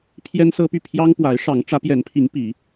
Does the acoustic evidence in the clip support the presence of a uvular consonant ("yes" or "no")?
no